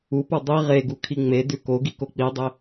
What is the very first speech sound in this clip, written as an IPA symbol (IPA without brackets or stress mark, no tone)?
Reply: u